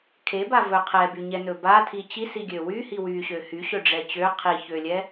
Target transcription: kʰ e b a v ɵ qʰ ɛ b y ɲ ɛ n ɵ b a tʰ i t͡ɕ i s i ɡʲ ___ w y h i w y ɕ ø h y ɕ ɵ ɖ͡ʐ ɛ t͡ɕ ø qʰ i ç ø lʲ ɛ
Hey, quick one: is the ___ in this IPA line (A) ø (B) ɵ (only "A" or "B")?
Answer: A